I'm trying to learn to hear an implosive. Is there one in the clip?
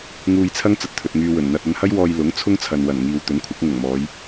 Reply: no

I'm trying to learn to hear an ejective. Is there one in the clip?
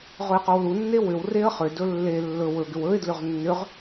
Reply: no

